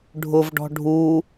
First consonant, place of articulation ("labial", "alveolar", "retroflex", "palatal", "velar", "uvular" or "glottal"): retroflex